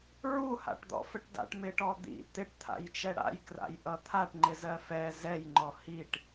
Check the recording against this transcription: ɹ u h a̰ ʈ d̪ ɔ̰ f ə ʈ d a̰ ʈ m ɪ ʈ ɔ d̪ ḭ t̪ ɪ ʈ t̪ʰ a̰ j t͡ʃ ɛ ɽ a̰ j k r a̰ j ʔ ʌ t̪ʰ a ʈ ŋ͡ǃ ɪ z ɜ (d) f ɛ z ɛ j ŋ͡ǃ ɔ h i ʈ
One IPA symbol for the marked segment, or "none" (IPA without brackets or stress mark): none